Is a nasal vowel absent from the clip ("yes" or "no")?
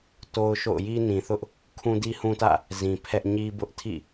no